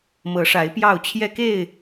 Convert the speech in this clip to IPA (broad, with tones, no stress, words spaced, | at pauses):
mɤ˨˦ʂa˨˦ɪ̯ pjɑ˥˨ʊ̯t͡ɕʰjɛ˦ke˥˨ɪ̯